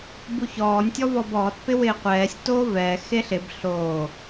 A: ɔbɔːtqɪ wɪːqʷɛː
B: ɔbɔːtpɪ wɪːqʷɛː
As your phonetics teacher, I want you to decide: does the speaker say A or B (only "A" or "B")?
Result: B